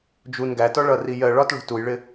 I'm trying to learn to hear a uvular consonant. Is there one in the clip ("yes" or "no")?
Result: no